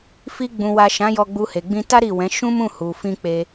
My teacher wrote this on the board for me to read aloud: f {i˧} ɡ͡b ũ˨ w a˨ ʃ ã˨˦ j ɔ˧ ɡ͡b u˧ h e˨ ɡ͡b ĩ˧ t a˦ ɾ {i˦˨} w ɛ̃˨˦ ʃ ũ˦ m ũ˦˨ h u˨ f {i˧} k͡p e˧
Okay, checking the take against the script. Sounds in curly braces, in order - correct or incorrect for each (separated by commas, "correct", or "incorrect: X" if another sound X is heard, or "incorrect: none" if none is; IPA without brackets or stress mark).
correct, correct, incorrect: ĩ˧